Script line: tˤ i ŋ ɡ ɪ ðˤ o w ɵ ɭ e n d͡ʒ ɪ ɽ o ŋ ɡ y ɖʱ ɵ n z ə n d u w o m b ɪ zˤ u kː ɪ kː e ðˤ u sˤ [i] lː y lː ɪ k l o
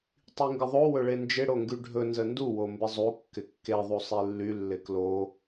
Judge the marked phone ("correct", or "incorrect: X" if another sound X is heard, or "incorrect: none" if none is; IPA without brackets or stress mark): correct